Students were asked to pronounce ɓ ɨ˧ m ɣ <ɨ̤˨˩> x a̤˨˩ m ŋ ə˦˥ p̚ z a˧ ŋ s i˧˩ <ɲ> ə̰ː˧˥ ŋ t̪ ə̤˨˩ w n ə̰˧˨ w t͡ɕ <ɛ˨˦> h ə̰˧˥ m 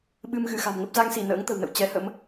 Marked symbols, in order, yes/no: no, no, yes

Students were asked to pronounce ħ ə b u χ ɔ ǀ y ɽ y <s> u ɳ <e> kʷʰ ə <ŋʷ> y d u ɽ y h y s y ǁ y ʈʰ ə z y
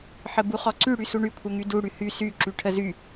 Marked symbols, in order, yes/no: yes, no, no

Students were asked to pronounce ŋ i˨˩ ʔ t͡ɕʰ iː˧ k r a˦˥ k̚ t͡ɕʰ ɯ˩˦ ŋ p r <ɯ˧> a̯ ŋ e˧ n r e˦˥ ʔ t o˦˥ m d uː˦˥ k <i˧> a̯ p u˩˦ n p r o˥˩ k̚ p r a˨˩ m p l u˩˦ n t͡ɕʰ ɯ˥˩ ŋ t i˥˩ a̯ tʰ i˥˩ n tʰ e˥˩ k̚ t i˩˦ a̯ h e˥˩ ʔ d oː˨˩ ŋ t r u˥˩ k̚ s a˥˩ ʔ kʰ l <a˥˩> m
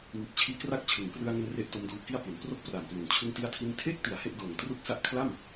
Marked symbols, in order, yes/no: yes, no, yes

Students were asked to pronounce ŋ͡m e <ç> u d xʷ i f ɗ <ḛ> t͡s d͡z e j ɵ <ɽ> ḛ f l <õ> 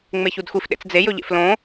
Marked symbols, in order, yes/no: yes, yes, no, yes

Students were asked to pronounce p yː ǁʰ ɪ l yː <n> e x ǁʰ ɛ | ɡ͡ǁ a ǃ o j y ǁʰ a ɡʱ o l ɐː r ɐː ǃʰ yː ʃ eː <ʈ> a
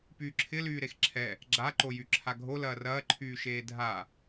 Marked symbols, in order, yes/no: no, no

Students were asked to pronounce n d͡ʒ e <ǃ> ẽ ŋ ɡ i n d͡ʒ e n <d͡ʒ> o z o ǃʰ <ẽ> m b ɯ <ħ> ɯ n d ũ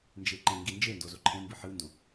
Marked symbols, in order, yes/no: yes, no, yes, yes

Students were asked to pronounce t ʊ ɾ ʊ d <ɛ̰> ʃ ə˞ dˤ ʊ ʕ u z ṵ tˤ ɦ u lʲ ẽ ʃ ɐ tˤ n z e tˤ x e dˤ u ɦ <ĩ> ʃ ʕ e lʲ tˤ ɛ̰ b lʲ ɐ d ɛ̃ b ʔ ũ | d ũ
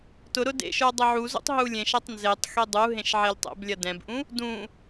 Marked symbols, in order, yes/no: no, no

